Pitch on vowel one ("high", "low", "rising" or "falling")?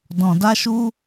low